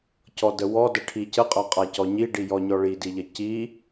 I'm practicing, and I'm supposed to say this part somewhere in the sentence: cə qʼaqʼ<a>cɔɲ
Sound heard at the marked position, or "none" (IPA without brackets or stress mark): a